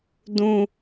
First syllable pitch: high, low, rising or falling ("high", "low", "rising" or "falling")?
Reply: high